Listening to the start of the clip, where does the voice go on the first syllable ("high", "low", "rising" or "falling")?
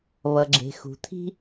low